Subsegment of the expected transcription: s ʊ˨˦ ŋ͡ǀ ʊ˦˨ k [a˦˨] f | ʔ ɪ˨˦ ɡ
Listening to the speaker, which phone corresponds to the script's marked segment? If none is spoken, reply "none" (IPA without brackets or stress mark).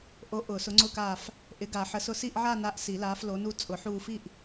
aː˦˨